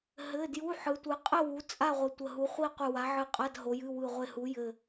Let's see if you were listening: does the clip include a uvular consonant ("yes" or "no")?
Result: yes